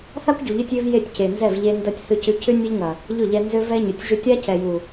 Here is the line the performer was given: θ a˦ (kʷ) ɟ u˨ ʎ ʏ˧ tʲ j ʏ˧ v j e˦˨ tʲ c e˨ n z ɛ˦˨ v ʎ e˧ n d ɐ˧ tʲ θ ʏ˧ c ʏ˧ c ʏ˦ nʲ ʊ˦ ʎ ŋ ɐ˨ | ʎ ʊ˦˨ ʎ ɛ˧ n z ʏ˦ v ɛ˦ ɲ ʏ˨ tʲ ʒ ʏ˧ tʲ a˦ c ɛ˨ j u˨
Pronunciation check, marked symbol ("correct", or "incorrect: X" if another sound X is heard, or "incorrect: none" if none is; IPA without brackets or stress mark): correct